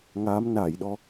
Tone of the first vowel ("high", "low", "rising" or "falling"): rising